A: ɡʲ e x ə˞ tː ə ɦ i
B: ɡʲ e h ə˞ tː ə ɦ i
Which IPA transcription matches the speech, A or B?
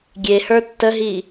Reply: B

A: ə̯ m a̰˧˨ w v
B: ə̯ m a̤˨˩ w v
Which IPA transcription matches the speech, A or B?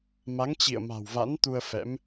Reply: B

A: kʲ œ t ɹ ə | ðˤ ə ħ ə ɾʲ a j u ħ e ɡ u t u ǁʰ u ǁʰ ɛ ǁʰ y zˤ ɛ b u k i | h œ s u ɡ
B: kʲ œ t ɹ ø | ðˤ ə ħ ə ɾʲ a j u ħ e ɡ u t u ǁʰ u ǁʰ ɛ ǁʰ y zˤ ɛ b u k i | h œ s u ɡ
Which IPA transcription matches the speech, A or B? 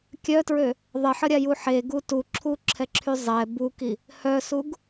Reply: B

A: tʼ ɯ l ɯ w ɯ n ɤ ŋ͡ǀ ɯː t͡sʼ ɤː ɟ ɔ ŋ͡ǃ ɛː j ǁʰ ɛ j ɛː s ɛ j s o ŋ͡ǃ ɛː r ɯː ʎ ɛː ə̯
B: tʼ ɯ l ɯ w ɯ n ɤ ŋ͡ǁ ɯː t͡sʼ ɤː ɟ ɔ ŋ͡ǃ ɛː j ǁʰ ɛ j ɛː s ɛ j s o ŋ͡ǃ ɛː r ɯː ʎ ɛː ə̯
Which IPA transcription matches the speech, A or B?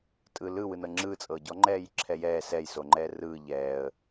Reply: B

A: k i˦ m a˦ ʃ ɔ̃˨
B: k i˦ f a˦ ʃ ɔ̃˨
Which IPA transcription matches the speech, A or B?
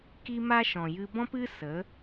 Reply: A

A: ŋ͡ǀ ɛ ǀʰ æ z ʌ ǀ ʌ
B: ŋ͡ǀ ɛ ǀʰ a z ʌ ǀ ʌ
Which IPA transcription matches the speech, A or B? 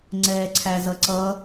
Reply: A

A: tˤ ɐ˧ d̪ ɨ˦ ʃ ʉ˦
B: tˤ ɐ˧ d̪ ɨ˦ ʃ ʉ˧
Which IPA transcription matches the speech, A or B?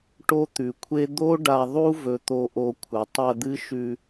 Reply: B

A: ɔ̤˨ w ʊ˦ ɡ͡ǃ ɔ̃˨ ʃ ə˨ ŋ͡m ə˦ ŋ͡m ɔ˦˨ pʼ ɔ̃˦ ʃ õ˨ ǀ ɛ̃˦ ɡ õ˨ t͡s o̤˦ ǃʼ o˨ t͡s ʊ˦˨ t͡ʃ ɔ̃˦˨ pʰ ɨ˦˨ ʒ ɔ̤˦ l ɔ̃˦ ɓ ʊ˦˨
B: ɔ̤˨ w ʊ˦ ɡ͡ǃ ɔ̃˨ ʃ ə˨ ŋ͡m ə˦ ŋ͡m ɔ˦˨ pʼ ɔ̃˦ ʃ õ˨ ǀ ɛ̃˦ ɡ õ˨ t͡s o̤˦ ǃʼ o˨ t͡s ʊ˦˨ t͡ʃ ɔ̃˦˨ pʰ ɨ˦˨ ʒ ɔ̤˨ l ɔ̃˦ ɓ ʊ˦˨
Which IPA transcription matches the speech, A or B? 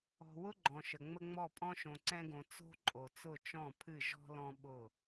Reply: A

